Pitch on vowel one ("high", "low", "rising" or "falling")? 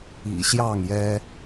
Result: low